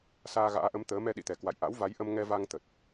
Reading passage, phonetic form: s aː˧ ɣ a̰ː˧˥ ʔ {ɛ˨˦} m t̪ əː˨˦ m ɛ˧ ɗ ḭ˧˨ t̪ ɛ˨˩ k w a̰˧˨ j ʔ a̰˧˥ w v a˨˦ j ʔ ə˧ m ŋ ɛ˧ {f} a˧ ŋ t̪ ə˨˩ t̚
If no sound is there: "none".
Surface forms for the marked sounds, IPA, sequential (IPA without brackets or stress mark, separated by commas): ə˨˦, v